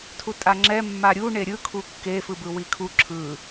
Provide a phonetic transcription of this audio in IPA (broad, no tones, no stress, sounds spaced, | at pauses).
tʰ u tʼ a ŋ͡ǁ ɛ mː a ɾʲ u ɳ e ɾʲ ɯ kʰ u kː e f ɯ b ɯ w i kʰ u ǁʰ ɯ